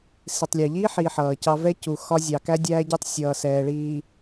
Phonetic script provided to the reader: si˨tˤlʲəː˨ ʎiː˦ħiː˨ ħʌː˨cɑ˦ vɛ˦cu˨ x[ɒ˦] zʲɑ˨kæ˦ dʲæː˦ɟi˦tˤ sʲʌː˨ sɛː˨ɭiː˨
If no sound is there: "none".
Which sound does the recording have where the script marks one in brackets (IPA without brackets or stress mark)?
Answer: ɒ˦